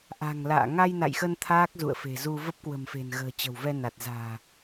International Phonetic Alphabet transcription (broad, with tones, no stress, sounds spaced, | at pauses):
ʔ a̤˨˩ ŋ l a̰ː˧˨ ŋ a˧ j n a̰˧˨ j x ə˧ n t̪ʰ aː˦˥ k̚ z ṵ˧˨ ə̯ f e̤˨˩ z u˧ v ə˦˥ p̚ k w ə̤˨˩ m f e̤˨˩ n ɣ ə̤ː˨˩ t͡ɕ ə̤˨˩ w v ɛ˧ n a˨˩ t̚ z a̤ː˨˩